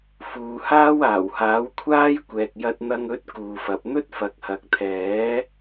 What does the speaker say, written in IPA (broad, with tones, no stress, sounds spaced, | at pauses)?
f uː˨˧ h aː˥ w aː˨˩ w h aː˨˥ w kʷʰ aː˥ j kʷ ɛː˨ k̚ j ɐ˧ t̚ n̪ ɐ˧ ŋ ɵ˨˥ t̚ k uː˨ f ɐ˨ p̚ n̪ ɵ˥ t̚ f ɐ˨ k̚ h ɐ˨ k̚ t̪ʰ ɛː˨˥